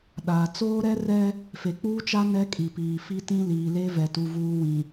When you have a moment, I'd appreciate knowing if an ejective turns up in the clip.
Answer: yes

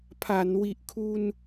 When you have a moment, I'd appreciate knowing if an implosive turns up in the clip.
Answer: no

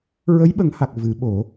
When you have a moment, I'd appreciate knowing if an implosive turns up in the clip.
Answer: yes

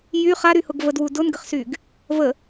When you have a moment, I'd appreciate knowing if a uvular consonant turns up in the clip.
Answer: yes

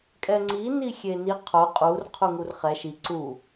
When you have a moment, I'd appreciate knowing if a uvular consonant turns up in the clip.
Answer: yes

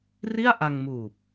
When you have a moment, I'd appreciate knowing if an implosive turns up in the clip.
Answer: no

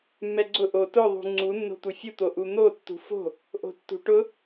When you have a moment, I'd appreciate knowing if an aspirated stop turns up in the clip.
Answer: no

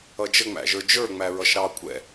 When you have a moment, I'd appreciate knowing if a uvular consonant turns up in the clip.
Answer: no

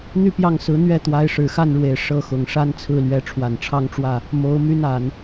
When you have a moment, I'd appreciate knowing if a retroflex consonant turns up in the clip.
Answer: yes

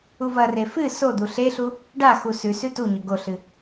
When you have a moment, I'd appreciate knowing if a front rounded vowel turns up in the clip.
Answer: no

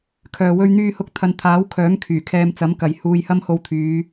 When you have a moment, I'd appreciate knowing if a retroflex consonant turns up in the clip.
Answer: no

